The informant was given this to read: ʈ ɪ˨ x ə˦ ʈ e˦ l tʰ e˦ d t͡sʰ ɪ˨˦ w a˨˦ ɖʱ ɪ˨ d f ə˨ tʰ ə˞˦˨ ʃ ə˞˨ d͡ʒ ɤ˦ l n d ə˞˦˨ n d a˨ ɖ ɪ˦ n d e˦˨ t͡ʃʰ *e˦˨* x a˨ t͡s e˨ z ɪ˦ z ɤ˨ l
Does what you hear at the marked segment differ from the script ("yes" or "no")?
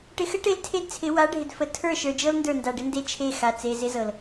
no